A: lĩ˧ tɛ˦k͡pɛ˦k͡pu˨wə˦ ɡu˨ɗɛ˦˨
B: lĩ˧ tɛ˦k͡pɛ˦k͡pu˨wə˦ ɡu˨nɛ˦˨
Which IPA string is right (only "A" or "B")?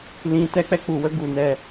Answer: B